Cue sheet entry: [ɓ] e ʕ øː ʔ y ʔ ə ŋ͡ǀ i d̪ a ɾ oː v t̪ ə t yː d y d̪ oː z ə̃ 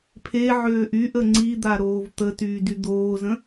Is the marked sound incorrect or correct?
incorrect